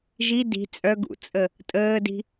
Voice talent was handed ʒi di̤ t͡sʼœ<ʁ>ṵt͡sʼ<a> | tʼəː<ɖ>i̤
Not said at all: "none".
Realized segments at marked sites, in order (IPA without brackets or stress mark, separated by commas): ɡ, ə, d